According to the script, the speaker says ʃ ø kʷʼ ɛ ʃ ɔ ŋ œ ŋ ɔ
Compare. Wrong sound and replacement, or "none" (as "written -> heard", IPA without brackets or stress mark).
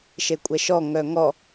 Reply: ø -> e